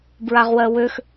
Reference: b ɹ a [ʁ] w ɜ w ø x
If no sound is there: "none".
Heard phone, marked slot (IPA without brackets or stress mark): ʁ